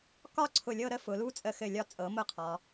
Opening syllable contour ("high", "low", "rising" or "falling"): falling